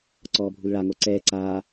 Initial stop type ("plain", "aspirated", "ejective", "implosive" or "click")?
click